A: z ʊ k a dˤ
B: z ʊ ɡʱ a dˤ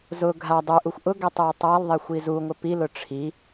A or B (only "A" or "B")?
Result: B